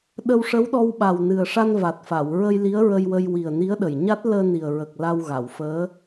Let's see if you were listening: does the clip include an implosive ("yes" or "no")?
yes